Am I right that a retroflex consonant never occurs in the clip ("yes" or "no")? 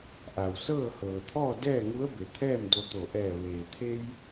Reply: yes